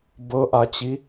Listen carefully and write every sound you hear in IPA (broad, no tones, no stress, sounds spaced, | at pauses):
b ɤ ʔ a t͡ɕ i